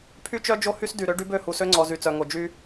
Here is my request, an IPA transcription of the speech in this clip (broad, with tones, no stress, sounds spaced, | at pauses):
pʰ y˦ t͡ʃ œ˦ d͡ʒ o˦ h y˦ s d y˨ ɾ ø˦ ɖ y˦ b ø˦˨ h u˨ s ø˦ ŋ͡ǀ ɔ˨ z y˨ t͡s œ˨ ŋ o˨ d͡ʒ y˦